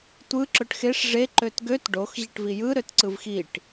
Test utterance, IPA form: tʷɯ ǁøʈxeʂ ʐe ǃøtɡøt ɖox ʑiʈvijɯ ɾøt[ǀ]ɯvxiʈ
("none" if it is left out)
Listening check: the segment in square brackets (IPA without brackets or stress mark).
ǀ